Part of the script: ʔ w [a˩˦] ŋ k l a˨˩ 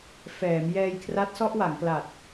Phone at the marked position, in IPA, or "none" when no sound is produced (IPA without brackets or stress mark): a˩˦